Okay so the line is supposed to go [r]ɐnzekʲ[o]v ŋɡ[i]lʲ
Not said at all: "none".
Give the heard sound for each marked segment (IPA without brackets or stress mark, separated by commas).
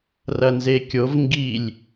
r, o, i